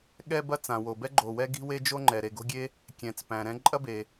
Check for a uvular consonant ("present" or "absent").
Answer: absent